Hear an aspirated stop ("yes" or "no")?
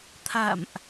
yes